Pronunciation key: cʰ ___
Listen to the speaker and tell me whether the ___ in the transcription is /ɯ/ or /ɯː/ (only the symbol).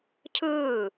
ɯː